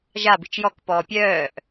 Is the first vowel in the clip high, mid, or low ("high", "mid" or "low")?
low